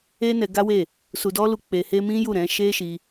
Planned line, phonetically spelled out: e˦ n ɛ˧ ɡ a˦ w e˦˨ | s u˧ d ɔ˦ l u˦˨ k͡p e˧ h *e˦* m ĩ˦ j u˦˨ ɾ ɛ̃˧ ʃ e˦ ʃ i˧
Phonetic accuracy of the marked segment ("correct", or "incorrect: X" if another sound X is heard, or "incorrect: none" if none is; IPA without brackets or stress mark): correct